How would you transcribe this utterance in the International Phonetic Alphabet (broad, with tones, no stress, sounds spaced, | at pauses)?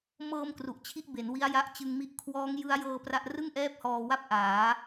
m ɤː˧ m k r u˨˩ ʔ t͡ɕʰ i˥˩ ʔ b e˩˦ n w i˦˥ a̯ j a˦˥ ʔ t͡ɕ ɯ˧ ŋ m i˥˩ ʔ kʰ w ɔː˦˥ ŋ j ɯ˦˥ a̯ j ɤː˧ p r a˥˩ ʔ r ɯ˥˩ ŋ ʔ ɛː˥˩ p̚ h ɔː˧ w a˥˩ p̚ ʔ aː˩˦